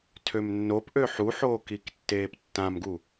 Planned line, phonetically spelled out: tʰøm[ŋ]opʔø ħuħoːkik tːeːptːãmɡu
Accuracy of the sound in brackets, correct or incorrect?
incorrect